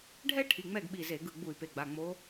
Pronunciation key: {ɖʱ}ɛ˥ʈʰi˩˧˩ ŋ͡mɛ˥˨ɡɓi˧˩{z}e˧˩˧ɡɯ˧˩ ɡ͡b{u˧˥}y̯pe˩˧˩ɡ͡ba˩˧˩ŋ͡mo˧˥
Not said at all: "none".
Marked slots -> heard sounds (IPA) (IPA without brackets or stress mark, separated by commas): ɖʱ, z, u˧˩˧